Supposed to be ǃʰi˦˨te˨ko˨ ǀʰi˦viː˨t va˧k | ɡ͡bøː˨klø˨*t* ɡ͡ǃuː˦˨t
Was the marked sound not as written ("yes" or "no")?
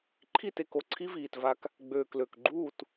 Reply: yes